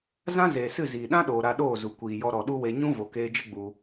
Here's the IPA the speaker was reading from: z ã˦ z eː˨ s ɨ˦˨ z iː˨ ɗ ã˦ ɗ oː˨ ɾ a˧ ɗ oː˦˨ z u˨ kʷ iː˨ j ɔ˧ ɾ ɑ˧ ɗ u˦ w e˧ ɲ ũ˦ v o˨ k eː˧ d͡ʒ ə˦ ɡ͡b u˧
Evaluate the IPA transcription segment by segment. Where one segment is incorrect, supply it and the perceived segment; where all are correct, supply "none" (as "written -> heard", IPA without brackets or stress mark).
ɑ˧ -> ɔ˧